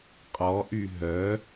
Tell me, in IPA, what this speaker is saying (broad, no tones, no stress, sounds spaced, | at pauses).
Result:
qʼ ɔ ʔ y ɦ œ